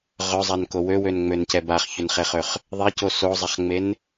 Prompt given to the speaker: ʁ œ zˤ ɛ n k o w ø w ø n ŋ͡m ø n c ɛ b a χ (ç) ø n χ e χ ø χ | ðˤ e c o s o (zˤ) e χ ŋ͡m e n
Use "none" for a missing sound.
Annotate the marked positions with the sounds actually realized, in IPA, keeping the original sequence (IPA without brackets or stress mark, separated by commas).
ç, zˤ